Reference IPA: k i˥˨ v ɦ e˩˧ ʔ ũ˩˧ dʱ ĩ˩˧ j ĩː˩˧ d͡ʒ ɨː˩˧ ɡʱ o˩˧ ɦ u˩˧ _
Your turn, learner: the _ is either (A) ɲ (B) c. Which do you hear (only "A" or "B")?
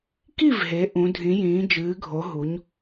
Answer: A